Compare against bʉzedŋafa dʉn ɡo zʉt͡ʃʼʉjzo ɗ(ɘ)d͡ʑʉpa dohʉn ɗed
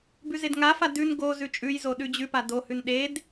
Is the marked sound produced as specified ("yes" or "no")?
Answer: no